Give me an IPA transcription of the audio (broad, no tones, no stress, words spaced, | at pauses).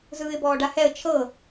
zɯːɪ̯bɔːɖahɛə̯ t͡ʃʰɤ